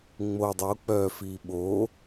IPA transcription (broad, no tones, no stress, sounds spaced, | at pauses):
ŋ͡m o dˤ o k͡p œː f iː ɓ o